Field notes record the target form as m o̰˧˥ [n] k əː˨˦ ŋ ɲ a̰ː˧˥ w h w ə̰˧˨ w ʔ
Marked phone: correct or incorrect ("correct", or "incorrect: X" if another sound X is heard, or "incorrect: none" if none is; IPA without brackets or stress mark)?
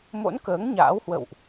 correct